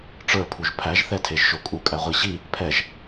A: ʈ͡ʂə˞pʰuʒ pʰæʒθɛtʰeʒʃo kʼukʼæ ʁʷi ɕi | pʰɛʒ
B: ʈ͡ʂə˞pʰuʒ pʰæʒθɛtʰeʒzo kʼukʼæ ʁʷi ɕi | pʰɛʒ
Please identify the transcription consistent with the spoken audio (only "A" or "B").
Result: A